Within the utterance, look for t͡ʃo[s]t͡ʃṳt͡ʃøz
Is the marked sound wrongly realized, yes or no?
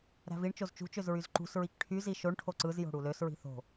yes